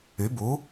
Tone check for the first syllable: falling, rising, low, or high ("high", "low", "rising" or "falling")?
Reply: rising